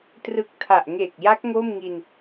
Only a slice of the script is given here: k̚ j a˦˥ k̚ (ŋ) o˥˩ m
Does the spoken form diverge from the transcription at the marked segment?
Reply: no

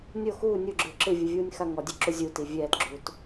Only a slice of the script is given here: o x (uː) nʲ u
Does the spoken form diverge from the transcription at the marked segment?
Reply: no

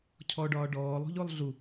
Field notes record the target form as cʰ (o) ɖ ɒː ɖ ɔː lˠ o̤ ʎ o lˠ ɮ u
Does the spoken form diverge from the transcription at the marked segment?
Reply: yes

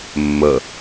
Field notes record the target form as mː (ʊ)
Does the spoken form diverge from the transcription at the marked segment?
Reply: yes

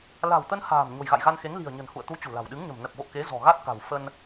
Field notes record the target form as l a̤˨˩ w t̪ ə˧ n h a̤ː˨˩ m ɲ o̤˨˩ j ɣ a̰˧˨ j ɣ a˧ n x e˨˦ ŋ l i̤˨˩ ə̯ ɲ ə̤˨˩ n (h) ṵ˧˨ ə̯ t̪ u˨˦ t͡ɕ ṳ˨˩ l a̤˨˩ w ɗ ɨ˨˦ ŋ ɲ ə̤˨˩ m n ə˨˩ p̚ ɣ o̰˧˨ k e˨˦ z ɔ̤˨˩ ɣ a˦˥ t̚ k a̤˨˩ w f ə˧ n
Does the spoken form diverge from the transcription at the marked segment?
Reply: no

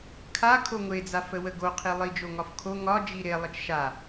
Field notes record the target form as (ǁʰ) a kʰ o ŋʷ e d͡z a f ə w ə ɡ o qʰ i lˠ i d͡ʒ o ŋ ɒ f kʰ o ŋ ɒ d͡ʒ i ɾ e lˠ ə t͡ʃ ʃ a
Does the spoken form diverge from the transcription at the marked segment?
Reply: yes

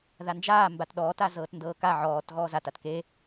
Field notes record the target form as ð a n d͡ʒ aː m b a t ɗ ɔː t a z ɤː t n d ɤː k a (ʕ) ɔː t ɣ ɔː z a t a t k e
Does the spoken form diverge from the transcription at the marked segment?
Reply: no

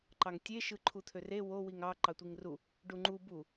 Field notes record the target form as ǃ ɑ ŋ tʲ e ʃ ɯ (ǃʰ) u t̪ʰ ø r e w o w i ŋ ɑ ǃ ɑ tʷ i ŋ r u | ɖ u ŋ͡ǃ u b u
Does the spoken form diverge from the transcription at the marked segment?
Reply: no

